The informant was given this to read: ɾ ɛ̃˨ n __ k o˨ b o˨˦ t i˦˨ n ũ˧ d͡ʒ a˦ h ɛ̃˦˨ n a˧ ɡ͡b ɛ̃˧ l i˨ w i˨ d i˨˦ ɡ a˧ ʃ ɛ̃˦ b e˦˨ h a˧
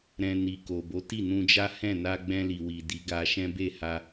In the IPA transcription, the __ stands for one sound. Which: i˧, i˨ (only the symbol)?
i˨